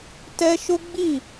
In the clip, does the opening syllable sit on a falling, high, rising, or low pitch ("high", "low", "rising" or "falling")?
high